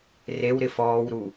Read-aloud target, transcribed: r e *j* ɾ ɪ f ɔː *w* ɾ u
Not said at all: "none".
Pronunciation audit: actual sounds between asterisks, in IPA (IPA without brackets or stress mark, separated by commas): w, w